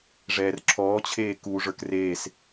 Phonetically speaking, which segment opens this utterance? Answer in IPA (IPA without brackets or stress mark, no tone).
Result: ʐ